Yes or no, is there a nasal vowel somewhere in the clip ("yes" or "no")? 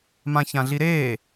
yes